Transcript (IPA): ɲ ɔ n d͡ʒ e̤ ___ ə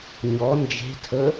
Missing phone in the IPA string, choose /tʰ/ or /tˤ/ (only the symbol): tʰ